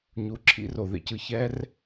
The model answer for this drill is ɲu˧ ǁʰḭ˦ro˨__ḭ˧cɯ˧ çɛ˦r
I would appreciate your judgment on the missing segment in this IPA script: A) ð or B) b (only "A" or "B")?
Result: A